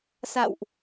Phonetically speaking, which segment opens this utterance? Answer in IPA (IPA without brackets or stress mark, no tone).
s